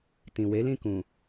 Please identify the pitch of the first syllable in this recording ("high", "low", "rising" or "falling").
low